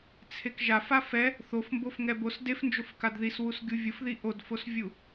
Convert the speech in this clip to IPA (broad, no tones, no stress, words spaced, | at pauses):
t͡sʰekʒafa fɛ | θofmbof ŋɛbos defnd͡ʒof kadðiswus ɡʲuvʲʊfði ʔodfosvʲu